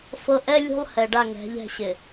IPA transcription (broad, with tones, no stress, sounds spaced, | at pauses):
f ɤ˦ ʔ ɛ˦ lʲ ṳ˦ lˠ h ɛ˨ ɖ a˦˨ ŋ ɛ̤˨˦ ʎ ɛ̤˦˨ ɕ ɪ˨